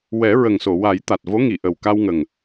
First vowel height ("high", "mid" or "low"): mid